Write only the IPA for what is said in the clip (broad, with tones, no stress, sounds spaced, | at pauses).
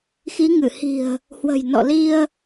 x i˨˦ ŋ ɨ˧˩ h i̤˨˩ ə̯ | h w ə̤˨˩ j n ɔ̰˧˨ l i˧ ə̯